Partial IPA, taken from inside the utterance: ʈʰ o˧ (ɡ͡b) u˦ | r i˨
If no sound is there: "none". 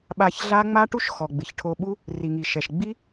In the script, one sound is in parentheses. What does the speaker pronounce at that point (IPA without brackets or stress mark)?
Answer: ɓ